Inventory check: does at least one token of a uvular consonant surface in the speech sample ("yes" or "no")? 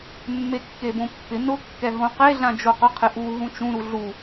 yes